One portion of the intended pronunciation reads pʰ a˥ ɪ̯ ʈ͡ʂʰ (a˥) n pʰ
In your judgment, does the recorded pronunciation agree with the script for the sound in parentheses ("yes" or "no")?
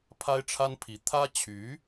yes